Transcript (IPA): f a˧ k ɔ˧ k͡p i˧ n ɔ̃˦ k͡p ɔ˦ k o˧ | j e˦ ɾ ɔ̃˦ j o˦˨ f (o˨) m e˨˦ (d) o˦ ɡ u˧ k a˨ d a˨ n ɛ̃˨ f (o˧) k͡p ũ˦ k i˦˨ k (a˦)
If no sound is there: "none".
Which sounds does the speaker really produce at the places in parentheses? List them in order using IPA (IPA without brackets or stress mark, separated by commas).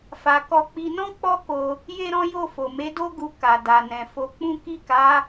o˨, d, o˨˦, a˨˦